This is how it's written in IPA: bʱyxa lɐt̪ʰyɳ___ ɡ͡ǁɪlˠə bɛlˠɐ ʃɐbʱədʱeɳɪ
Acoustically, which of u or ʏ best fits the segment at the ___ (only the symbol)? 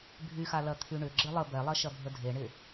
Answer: ʏ